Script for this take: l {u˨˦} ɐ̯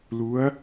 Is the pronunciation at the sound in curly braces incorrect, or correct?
correct